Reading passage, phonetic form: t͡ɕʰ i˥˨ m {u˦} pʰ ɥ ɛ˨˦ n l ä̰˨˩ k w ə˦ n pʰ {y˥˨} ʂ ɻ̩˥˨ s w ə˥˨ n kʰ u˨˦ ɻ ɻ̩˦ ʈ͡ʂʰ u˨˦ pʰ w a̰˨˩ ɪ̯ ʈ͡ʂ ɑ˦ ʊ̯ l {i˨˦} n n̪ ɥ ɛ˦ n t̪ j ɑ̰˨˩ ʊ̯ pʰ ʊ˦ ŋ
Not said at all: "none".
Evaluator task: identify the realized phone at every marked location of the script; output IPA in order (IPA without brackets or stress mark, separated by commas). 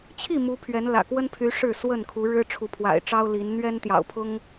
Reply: u˨˦, y˨˦, i˨˦